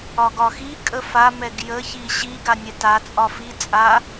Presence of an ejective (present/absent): present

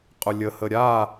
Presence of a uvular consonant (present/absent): present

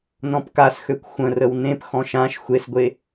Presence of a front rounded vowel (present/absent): present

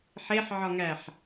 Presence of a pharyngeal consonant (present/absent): present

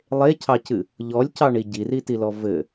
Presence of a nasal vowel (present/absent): absent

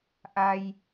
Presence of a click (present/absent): absent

